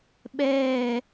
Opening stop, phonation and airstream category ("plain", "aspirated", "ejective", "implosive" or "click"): implosive